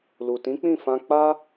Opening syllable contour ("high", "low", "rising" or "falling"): low